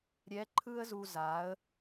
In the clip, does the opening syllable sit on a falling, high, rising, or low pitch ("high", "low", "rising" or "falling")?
rising